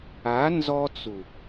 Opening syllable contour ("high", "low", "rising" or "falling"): rising